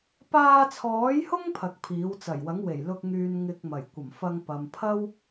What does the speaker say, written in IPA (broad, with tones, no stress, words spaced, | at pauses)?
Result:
paː˧t͡sʰɔː˨˥jhʊ˥ŋ pʰɐ˧k̚pʰiː˨˥w t͡sɐ˨˩jwɐ˨˥ŋwe˨˩jlʊ˧k̚ ŋyː˧n ŋɪ˧k̚mɐ˨˩j kʷɐ˨˩mfɐ˧ŋ pɐ˨m pʰɐ˥w